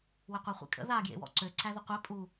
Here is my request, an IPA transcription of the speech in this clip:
wɪqʷaχʷḛkʼə̰ ða ɡjḛwɔ̰ǀø ǀæðəqʷe pʼu

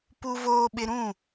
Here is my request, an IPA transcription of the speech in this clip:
pu˦voː˦ɓɪ˦ ɾũ˦˨

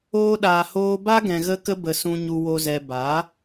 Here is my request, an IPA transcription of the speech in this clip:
oː˧ɗaː˨ hoː˧ba˦ ɡɛ̃˨ɣə˧kə˧bə˨ sũ˨ɲu˨wo˨zɛ˨ ba˨˦

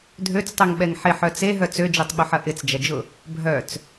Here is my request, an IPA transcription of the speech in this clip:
dʱøt͡stˤøŋɓɛŋ ħɪħœ t͡seɦœ t͡sød͡ʒøtˤɓʊħɐ ʔɪt͡sd͡ʒɐd͡ʒʊ | bʱœt͡s

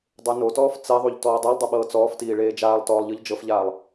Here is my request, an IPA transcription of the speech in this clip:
dˤenotɔːf t͡sɛðˤuʎ tɔːdˤolˠdˤɯ ɓɤːt͡sɔːftiː ɭeːd͡ʒaːlˠtɔːlˠ ʎɯʎd͡ʒɤfʎaːlˠ

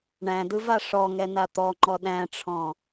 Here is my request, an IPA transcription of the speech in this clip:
ɳæ̃dɯva ʂɔŋɛna t̪ɔŋ͡ǃɔ ɗæ̃ʈ͡ʂʰɔ̃

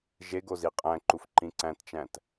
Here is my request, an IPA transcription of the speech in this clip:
ʒeɡo ziqʼæ̃ǃuf ǃĩǀæ̃tt͡ʃæ̃t

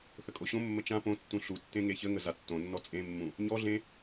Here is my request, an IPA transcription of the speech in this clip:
θəkʼoɕõmːə t͡ʃã põtːũ ɬutːẽ ŋeçəŋə zatːõnːɔ t͡sʼẽmːũ | ɲɔɮẽ

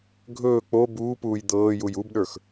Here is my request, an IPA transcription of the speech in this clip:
ɡʱɵː k͡po buːpuːj d̪ɤːjuj ubɗə˞x

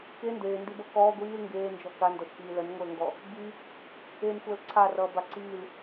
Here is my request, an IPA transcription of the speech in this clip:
ke ndeːndibʌ kɔː ɡʷiːl ŋɡeːnd͡ʒɔ kandɔʃkiː lənŋʷəːŋɡɔ | bi | enxʷəːl ǀʰarʌːba ǀiːl

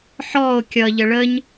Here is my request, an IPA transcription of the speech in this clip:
ħɔo̯ kʲʌʎə ɭəɲ

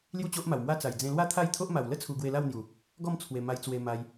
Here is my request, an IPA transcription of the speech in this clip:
lju˥˧t͡ɕo˦ʔma˨˩wmwa˥˧ t͡sa˨˩jd͡zẽ˧lwa˥˧ t̪ʰa˥˧jt̪ʰo˦ʔma˨˩w lə˦t͡sʰu˨˩ ɡwe˧la˥˧wn̪ju˨˩ | ɡɔ˥˧mt͡sʰwe˨˩ ma˧jt͡swe˧ma˧j

